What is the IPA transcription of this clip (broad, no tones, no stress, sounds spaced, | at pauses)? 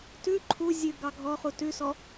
t ʉ ǃʰ u zʲ ʉ ɡ ɑ ɡʱ ɔ χ u t ʉ s ɔ